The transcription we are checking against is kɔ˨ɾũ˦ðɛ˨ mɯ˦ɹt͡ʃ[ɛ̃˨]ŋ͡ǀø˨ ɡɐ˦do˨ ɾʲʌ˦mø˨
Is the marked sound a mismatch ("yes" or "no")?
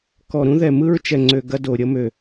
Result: yes